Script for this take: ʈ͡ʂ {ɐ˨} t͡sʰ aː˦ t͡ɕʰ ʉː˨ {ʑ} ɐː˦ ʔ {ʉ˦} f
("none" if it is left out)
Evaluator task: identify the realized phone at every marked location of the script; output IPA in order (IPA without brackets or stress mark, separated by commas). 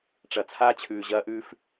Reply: ɐ˨, ʑ, ʉ˦